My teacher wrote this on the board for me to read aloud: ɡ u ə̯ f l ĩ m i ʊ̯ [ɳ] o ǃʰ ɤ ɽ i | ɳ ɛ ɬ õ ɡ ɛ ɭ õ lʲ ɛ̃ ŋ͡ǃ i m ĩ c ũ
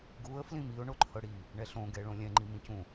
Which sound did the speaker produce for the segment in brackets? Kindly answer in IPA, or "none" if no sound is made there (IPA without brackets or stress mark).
ɳ